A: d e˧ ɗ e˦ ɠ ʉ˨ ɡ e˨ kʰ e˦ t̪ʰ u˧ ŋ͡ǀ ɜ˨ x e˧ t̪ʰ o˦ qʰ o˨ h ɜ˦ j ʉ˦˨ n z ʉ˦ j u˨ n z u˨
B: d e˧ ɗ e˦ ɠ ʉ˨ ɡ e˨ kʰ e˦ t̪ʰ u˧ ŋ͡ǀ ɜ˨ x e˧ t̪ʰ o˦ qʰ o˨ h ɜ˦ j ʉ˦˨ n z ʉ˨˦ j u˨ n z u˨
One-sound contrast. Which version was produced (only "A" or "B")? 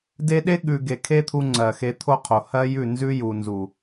A